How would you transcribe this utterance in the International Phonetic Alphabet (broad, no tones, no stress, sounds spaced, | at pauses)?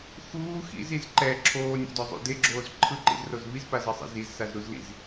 x uː x ḭ z i z ǃ ɛ ǁʰ oː nʲ o̰ d ɔ zˤ ṵ d e ɡ͡ǁ oː z ǃʰ ɯ ǃ ḭ z r o z v i z p a z ɤ sˤ ḭ z i z s a z ɾ u z l ḭ z